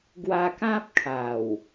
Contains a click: no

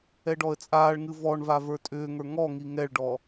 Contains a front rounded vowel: yes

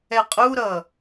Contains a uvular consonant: yes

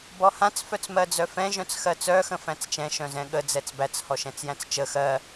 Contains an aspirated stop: no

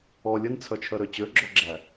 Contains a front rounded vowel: yes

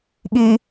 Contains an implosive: yes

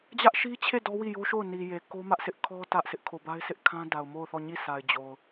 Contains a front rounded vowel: no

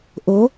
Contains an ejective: no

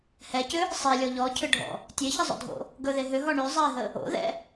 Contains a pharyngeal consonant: no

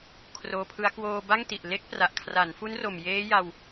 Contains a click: no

